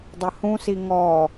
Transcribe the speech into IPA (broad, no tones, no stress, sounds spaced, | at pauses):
dˤ ə h ũ s i ŋ ɔ